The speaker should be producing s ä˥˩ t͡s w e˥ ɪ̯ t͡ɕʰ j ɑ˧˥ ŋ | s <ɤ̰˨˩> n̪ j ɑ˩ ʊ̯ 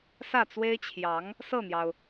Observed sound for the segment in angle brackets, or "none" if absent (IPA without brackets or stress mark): ɤ˥˩